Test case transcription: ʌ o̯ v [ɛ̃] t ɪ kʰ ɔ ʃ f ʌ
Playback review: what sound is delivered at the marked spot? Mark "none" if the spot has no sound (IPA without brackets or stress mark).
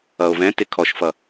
ɛ̃